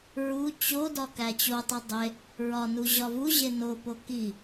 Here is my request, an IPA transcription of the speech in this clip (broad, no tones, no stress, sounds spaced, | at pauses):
ɹ u t͡ɕ o d ɒ k æ t͡ɕ o tˤ i dˤ e | ɹ ɒ n u ʑ ɒ v u ʑ e n o p o k i